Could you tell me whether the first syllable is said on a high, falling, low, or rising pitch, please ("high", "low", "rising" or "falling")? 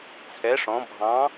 rising